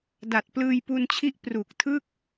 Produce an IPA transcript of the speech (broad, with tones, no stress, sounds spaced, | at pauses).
d a˨˩ t̚ p l ɯː˧ j p u˧ n t͡ɕʰ i˦˥ ʔ p r u˨˩ k̚ tʰ ɯ˥˩ k̚